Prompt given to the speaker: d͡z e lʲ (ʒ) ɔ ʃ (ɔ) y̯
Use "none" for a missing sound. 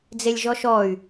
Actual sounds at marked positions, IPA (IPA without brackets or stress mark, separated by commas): ʒ, ɔ